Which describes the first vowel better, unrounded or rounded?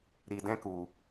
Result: unrounded